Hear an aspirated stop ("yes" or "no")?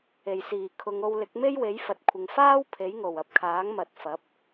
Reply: yes